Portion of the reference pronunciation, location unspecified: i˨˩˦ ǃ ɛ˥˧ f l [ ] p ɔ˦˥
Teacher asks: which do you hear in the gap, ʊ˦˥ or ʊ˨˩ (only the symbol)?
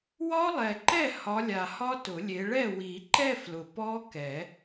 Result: ʊ˨˩